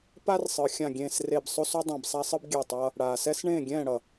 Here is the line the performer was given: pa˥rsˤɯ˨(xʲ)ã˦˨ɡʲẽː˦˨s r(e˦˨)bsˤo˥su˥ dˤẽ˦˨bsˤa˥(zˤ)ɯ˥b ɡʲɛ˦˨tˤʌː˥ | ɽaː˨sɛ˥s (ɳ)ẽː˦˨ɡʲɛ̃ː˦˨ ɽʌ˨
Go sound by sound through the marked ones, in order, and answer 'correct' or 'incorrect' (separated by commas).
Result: correct, correct, incorrect, correct